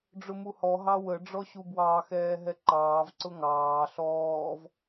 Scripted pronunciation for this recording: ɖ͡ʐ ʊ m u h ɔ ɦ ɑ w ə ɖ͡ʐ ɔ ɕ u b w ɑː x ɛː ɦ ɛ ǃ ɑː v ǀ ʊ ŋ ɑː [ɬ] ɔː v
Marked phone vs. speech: correct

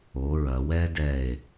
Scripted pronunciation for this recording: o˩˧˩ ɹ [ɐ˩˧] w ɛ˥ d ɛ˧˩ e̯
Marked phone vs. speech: correct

